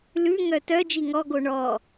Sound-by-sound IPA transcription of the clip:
l ʉ ŋ œ t œ d͡ʒ i ŋ ɔ ɡ o ɳ ɔ

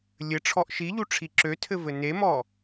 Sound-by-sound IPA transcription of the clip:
lʲ ɘ ʈ͡ʂʰ ɔ ʔ ʃ i ʎ u ʈ͡ʂʰ i ǁ ø tʰ ɘ v ɘ n e m ɔ

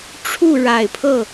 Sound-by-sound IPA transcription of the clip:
ʈ͡ʂʰ u˥˩ ɻ a˨˩ ɪ̯ pʰ ɤ˥˩

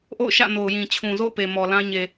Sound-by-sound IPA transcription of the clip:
ʔ o̰˦˨ ʊ̯ ʃ ä̰˦˨ n o˨ ʊ̯ j ĩ˨ t͡ɕʰ ũ˨ z o̰˦˨ ʊ̯ p e˨ m ɔ˨ l ã˦ ɲ e˨

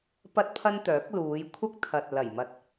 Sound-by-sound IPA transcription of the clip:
p ɐ˥ t̚ pʰ ɐ˥ n t̪ œː˨˥ k̚ l uː˨˧ j kʷʰ ɐ˥ k̚ t̪ʰ ɐ˨ t̚ l ɐ˨˩ j m ɐ˧ t̚

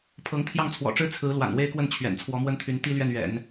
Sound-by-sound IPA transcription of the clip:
pʰ ɤ˧˥ ŋ t̪ʰ j ɑ˥˩ ŋ t͡sʰ w ɔ̰˨˩ ʈ͡ʂ ɻ̩˥ t͡sʰ ɹ̩˧˥ l w a̰˨˩ n w e˥˧ ɪ̯ k w ə˥˩ n t͡ɕʰ ɥ ɛ̰˨˩ n t͡sʰ w ɔ˧˥ m w ə˥ n t̪ʰ y˧˥ n t̪ i˥ l ɥ ɛ˥˩ n ɥ ɛ̰˨˩˦ n

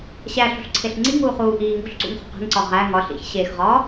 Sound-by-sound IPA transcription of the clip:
ɕ æ ɬ ṳ ɬ ǀʰ e ɬ ŋ͡ǀ i ŋ uː χ uː ʔ iː ŋ ṳ ɬ ǀ ṵ ŋ χ o̤ q e̤ ŋ ǀ ɒ ʁ æ ŋ ɒ ɬ ḭ ç ɕ e x ʁ ɒː

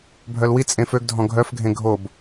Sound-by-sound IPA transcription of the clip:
bʱ œ l w i t͡sʼ ẽ f ø ɡ dʱ ɔ̃ ɡʱ œ f ɡʱ ẽ ɡʱ o b

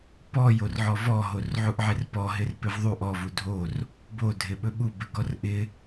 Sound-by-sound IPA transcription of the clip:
p ɔ j o r ʕ ɔ v ɔ ɦ o r ʕ u ʔ ʕ e r p ɔ ɦ ɪ r p ɪ v ðˤ u ʔ ɔ v u dʱ o r | b o dʱ ɪ ɓ ɵ ɓ u b ɪ ɡ ɔ r ʔ ɪ

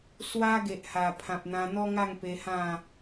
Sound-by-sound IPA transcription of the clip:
s w a˦ ɡ e˨ ʔ h a˨˩ pʰ ã˨ p̚ n̪ ã˧ n̪ ɔ˦ ŋ a˥˧ ŋ p e˧ h ã˥˧

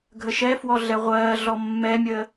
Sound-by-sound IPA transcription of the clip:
ɡʱ ə ʃ ɛ f w ɔ ɮ ɛ ʁʷ ɜː ɮ ɔ mː ɛ mʲ əː

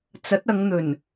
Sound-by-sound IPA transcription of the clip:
t͡s ɐ˨˥ t̚ ɐ˨˧ ŋ n̪ ɵ˨˩ n

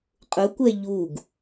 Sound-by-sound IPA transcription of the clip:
qʼ ʊ kʷ ɛ ʎ u ɡ

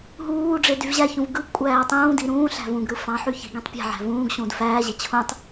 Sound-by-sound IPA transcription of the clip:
ɦ uː ɖ͡ʐ e d y v ʑ æ ç ũ v ɡ ɯ ɡ kʷʼ æː tˤ ũː d i ɾ ũː ɬ æ̤ v ũ ɡ ɾ ɯ f ɑ̃ ħ y ç i̤ ɡ ẽ tˤ pʲ æ̤ ʕ æ̤ v ũː ɡ ɕ ũː d f æː ʑ e t͡ɕʰ ũ tˤ

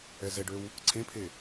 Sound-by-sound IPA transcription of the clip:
ɛ z ɛ ɖ ø w | ǀʰ ẽ pʰ e

